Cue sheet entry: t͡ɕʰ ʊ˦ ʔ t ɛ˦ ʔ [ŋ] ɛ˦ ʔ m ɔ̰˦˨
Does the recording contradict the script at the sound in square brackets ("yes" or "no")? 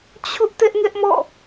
no